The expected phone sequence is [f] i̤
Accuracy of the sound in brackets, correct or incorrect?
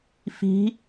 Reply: correct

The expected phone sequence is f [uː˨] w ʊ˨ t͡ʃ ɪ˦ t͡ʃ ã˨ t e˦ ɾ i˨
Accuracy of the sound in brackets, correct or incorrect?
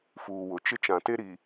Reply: correct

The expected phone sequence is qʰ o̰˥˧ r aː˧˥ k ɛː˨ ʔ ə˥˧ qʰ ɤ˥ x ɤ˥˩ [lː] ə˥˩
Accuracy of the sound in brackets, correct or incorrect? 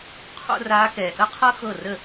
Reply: incorrect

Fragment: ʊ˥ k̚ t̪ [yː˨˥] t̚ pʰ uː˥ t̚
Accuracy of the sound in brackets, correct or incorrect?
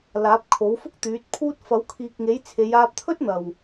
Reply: correct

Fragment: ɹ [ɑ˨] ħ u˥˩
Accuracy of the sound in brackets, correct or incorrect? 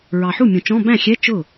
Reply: correct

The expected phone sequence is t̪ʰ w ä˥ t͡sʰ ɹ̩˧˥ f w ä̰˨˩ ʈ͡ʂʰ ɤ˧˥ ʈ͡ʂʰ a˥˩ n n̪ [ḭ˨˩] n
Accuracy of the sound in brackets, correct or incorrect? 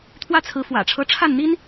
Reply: incorrect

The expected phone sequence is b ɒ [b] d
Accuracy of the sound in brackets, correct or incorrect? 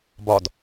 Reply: incorrect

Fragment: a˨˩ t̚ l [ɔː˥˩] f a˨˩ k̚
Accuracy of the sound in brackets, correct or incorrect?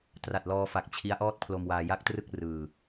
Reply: incorrect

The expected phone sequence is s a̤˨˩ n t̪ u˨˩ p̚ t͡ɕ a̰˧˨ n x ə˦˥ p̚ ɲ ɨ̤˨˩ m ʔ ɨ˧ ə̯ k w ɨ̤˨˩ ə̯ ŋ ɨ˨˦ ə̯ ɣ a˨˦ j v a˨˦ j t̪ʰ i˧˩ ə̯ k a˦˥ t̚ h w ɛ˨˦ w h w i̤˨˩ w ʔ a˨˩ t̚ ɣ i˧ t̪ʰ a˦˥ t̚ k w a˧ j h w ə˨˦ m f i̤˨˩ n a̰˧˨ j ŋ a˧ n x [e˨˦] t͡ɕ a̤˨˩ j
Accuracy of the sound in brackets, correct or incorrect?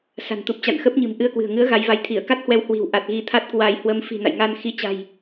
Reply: incorrect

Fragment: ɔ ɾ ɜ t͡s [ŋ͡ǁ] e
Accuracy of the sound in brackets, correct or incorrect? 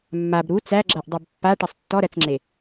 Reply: correct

